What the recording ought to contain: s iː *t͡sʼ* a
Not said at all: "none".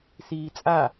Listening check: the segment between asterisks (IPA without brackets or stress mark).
t͡sʼ